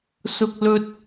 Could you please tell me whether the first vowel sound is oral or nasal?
oral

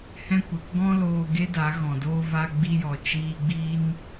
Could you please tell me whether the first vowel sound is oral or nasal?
nasal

